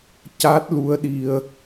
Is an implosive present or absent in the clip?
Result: present